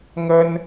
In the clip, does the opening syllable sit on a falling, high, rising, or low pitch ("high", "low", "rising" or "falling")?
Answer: high